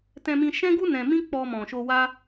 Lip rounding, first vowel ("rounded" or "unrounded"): unrounded